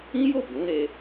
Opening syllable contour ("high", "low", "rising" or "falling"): high